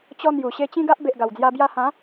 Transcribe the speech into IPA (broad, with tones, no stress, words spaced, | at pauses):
t͡ɕɔ˦n̪ju˨˩ ɕe˧t͡ɕĩ˦ɡa˦ʔ be˨ʔɡa˨˩wd͡zja˧ bja˧hã˨˦